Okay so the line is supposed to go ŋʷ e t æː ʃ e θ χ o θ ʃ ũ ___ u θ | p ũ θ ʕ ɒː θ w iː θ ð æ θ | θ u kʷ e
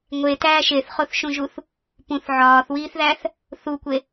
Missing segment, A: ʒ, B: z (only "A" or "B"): A